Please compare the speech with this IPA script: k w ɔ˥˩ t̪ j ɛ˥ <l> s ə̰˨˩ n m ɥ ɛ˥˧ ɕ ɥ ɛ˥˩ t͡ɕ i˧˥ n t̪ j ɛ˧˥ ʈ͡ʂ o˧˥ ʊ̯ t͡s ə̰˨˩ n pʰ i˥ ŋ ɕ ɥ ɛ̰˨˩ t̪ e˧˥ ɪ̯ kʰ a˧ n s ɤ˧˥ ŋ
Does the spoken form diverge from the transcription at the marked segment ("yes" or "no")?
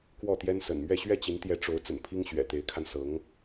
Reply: yes